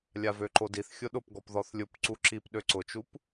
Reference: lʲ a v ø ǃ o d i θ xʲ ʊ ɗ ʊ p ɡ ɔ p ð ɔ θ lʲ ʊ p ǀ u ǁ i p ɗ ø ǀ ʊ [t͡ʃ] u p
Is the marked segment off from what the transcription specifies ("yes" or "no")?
no